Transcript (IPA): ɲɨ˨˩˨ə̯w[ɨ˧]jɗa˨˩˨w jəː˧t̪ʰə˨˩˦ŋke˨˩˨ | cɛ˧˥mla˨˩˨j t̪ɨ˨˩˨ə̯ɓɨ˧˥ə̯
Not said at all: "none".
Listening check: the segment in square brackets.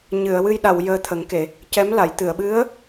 ɨ˧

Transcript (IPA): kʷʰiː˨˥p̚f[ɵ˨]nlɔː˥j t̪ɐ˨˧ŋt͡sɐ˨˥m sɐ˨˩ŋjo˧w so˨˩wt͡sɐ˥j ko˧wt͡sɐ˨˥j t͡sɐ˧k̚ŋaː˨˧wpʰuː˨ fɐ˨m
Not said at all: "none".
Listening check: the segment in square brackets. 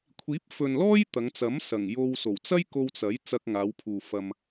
ɵ˨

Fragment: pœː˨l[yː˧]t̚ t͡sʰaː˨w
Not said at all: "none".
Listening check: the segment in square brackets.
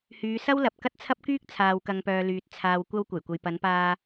yː˨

